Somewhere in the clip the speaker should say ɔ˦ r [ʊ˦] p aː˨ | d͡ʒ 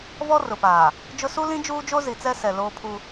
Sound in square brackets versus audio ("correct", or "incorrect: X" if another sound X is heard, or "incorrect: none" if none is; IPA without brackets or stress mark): incorrect: ʊ˨